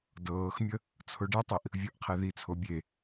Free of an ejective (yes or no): yes